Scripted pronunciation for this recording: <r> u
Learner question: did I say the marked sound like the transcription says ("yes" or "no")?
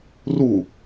yes